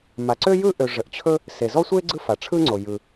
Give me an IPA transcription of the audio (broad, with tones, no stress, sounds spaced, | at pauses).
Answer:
m a˩ ǀ ø˥ j ɯ˥ ʔ ø˩ ʐ ə˩ ʔ t͡ɕʰ ɵ˥ | s e˩ z ɔ˥ sʷ e˥ ɡ͡ǀ ɯ˥ f a˩ ʈ͡ʂʰ ɯ˥ ŋ͡ǀ o˩ j ɯ˩